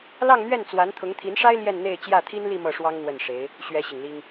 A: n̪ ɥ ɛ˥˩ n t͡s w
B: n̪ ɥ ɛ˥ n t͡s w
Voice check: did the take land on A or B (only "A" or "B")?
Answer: A